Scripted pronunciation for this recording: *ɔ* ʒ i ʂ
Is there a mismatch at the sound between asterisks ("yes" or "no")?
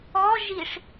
no